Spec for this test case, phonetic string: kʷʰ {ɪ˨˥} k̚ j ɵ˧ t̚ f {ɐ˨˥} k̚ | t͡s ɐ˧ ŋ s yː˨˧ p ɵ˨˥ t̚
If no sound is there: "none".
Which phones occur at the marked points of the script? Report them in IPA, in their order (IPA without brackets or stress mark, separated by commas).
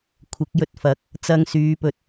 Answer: ɪ˨˥, ɐ˨˥